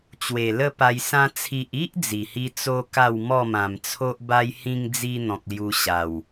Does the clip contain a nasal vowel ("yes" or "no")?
yes